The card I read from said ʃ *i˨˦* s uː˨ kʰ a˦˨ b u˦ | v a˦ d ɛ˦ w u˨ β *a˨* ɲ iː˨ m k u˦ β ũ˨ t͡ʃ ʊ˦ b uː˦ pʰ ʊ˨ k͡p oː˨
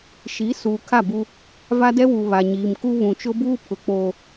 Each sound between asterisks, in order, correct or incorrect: correct, correct

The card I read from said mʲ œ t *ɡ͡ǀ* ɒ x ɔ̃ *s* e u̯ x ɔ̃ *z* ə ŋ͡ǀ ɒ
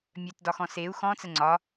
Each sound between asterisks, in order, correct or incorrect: incorrect: d, correct, incorrect: t͡s

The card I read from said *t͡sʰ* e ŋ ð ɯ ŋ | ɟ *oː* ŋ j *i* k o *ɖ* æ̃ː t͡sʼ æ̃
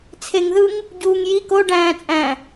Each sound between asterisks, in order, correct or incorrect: correct, incorrect: uː, correct, correct

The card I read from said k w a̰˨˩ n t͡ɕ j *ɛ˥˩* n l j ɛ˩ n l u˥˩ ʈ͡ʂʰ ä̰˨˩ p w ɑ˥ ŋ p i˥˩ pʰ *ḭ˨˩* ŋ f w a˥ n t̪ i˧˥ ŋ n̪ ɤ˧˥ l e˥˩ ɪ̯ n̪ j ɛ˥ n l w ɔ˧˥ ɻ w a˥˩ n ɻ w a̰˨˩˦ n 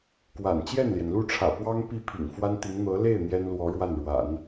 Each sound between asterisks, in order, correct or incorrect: correct, correct

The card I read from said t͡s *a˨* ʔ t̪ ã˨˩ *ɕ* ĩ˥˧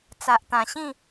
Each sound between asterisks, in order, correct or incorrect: correct, correct

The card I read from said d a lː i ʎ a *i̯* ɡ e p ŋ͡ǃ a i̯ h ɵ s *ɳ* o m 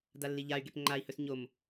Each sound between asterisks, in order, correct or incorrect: incorrect: y̯, incorrect: ɲ

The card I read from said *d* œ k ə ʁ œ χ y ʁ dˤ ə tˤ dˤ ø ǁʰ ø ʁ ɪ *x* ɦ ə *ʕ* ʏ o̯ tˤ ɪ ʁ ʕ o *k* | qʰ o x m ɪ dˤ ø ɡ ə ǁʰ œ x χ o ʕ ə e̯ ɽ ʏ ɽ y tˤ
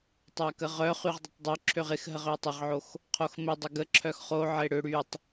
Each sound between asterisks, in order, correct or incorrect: incorrect: tˤ, correct, incorrect: ʁ, incorrect: x

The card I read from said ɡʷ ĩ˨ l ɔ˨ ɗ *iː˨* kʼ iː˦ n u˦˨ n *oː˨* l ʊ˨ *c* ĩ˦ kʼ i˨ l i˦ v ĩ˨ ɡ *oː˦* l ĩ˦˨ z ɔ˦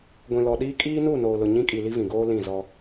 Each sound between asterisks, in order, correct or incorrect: incorrect: iː˦, correct, incorrect: ɲ, correct

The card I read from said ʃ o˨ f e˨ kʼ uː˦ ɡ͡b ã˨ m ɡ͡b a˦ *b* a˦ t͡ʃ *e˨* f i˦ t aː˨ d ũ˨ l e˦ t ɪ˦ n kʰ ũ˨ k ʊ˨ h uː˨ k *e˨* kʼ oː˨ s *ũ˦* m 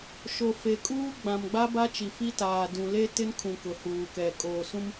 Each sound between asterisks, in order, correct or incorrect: correct, incorrect: i˨, incorrect: ɛ˨, correct

